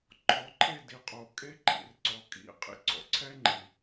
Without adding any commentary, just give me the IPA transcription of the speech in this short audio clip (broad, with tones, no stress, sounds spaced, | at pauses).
ǃʰ ɔ˨˦ ǃʰ e˦˨ d i˨ qʼ o˨ kʼ e˦ ǃʰ ḭ˨ r ǀ ɔ˨ kʼ ḭ˦˨ qʼ ḭ˦ ǀ ɔ̰˨ ǀʰ ɛ˦ ŋ͡ǃ i˨